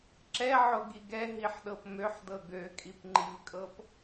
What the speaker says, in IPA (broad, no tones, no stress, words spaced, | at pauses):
ǁɛʕoɡiɡ ɛɦiħɗɤp møħdɤ ɡøkʼipŋ͡ǃivkʼɤp